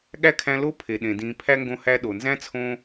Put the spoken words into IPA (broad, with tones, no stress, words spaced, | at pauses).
ɠæ˥kʰæ̃˦ lo˦pʰe˩ ɗẽ˩dĩː˨ pʰæ˥ŋɡõ˦hæ˦ ɗo˩nzæ̃˥t͡sʰõː˦